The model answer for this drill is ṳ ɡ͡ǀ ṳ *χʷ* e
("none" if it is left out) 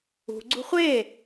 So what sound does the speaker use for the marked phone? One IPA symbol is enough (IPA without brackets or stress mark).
χʷ